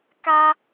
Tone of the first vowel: high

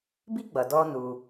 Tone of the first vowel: high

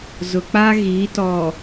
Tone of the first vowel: low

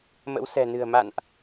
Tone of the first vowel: rising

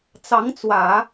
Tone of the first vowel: rising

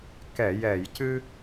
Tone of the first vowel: low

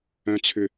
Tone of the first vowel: high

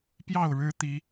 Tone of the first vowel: falling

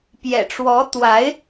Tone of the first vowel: low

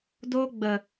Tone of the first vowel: high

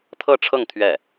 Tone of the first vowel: falling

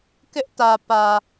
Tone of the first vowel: high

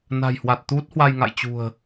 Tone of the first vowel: low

